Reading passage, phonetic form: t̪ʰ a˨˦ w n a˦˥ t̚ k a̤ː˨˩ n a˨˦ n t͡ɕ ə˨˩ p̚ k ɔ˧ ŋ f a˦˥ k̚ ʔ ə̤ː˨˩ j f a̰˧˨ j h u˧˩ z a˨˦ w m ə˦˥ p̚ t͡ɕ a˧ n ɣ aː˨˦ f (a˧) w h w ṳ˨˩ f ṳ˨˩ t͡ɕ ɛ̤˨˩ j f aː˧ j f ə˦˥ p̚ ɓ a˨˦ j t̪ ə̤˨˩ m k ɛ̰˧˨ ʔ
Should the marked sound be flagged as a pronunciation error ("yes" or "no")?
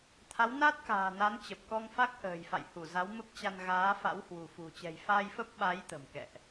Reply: yes